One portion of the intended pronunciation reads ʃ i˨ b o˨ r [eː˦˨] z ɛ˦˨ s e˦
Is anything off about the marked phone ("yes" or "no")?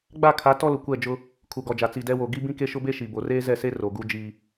yes